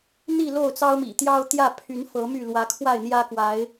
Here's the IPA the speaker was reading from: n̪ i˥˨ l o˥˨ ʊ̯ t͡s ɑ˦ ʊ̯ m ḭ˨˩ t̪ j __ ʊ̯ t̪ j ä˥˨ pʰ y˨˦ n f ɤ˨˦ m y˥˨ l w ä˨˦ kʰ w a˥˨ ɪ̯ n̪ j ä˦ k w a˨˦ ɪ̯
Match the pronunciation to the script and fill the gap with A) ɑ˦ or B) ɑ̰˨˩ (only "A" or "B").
A